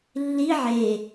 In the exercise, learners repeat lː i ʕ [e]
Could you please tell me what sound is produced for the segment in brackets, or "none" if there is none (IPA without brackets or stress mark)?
e